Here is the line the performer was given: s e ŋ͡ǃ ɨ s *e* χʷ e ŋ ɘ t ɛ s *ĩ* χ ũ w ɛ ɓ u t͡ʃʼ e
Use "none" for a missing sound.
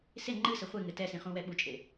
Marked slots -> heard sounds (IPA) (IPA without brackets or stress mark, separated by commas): ɘ, ĩ